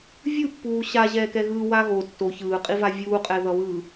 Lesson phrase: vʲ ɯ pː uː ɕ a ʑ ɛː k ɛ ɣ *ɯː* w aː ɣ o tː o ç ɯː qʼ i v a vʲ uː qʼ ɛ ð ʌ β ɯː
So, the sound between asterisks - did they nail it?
no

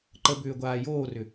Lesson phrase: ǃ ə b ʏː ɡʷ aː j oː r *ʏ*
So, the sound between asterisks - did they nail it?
yes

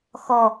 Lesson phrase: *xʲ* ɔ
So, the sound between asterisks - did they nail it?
no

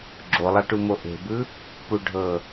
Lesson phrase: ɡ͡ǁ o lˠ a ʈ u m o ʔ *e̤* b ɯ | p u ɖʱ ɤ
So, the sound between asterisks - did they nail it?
yes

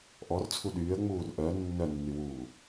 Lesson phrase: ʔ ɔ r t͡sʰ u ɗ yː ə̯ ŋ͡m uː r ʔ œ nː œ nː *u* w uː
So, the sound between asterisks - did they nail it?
no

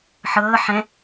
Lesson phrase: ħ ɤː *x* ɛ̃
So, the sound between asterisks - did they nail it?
no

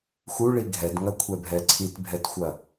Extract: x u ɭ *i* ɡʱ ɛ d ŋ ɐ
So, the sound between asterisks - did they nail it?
yes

